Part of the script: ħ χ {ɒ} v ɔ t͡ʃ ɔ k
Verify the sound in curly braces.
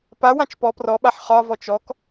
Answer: correct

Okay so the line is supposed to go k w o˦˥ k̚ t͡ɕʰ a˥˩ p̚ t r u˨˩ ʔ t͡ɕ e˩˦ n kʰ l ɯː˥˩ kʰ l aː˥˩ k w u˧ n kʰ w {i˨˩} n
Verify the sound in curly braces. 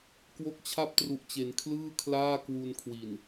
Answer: correct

